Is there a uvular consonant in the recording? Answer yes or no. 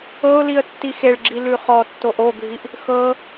yes